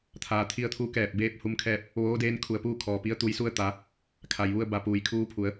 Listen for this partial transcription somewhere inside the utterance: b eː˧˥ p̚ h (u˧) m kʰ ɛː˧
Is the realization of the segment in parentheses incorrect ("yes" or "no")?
no